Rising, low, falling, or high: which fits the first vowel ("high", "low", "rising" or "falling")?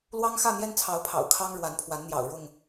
high